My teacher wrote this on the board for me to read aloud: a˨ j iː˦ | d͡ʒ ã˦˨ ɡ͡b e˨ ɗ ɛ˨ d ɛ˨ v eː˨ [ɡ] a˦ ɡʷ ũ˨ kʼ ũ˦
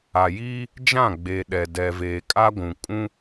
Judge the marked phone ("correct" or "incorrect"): incorrect